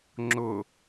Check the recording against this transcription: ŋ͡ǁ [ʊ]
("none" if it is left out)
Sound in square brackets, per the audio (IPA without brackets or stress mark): ʊ